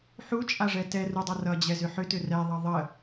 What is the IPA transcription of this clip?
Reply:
ħ u t͡ʃʼ a ʐ ɛ t ɛ r u dˤ ʌ r ʌ d͡ʑ ɛ z ʏ ħ ʏ t ʏ r ɛ ðˤ ʌ ðˤ ə

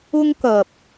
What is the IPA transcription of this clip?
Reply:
ʊ˥ ŋ k ɐ˨ p̚

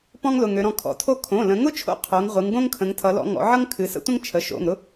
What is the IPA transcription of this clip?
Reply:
p ɔ̃˥ ŋ l ʊ˩˧˩ ŋ ø˩˧ ɾ ɔ̃˩˧ kʰ ɔ̰˩˧˩ tʰ o˥ kʰ õ˩˧˩ l ə̃˩˧ ŋ ʊ˥ t͡ʃʰ o̰˥ qʰ o˩˧ ŋ ʁʷ ɨ˩˧ ŋ ɡ õ˥ ŋ kʰ ə̃˩˧ ŋ tʰ ʌ˩˧ l ɔ̰˩˧ ŋ ɔ̰˩˧ ʕ ʌ˥ ŋ kʰ ɨ˩˧ s ə̰˥ tʷ ə̃˥ ŋ t͡ʃʰ ə˩˧˩ ʃ o̰˩˧˩ ŋ ɾ ʊ˥

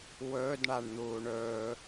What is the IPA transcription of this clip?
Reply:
w ɵ d ɳ a ɳ n̪ uː ɳ ɵː

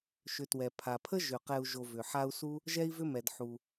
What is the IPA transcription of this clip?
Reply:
ʃ ʏ˨ t w ɛ˩ pʰ a˩ pʰ ə˥ ʒ ʏ˩ q ɛ˨ u̯ ʒ o˨ v ʏ˩ ħ a˦ u̯ s u˥ | ʒ ɛ˦ i̯ v ʏ˦ m ɛ˩ d ħ u˩

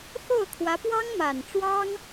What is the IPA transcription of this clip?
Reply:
x o˥˩ ʊ̯ kʰ w ä˧˥ p w ɑ˥ ŋ m a˨˩ n ʈ͡ʂ w ɑ˥ ŋ

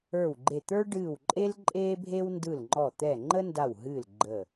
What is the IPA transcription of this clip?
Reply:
ə˞˧˩ w ɡ͡ǃ e˧˩ t̪ ə˞˦ ɖ ɨː˧˩ w ǃʼ e˦ l ǃʼ eː˦ bʱ e˦ w n d ɯ˧˩ l ŋ͡ǃ ɔ˧˩ t̪ ɛ˧˩ ŋ͡ǃ ə˦ n d a˧˩ w ɦ ɨː˧˩ l ɡ͡ǃ ə˧˩

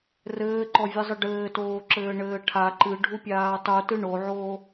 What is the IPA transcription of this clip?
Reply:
r ɘː ǃ ɔ vʲ ɨ zˤ ɨ ɖ ɘː t oː ǁ ɘː ɳ ɘː ʈʰ a ǃ ɨ ɖʱ u pʲ aː tˤ u t ɨ ɳ o ʕ oː

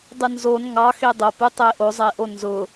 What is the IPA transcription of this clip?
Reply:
dˤ ɨ n z o n ŋ ɑ x e dˤ o p ɨ tˤ e ʔ o zˤ e ʔ o n z ʊ

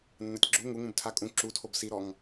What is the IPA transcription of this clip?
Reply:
nː a tʲ ɡ͡ǁ u ŋ u ŋ ũ b tʰ a kʼ ũ ǁ u tʰ o b s i ɾ ɔ ŋ

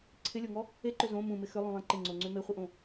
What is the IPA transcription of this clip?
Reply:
ǀʰ ɪ lʲ o ŋ ɔ | e ǃ ʏ z õ m ũ m ɪ x ʏ lˠ ũ lˠ ẽ ǃ ɪ ŋ͡ǀ o ŋ͡ǀ ʏ m e χʷ ɪ ʔ õ

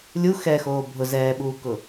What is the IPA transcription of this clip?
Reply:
lʲ u x ɛ x oː bʱ ʊ z ɛː ɓ uː k ʊ

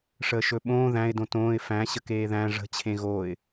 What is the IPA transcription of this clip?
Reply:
ʂ əː ʃ ɵ ɓ õː ð æ̃ ɪ̯ d õ t õː ɪ̯ f æ̃ ɕ ə k eː ð æ̃ ʐ ə̤ t͡ɕʰ ẽ ɣ oː ɪ̯

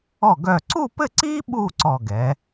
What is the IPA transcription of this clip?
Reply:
ɔ˧˩ ɡ œ˧˩ ǀ u˥˧ p ɘ˥˧ ǀ iː˥ ɓ u˥˧ ǀ ɔ˧˩ ɡ ɛ˩˧

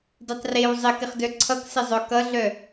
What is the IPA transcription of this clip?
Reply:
d e tˤ r e w zˤ ɪ k ɪ χ d œ ǀʰ ʌ k s ɪ zˤ œ k ʌ ɮ œ

